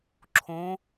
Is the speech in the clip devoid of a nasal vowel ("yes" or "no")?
no